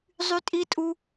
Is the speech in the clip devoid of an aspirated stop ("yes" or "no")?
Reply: yes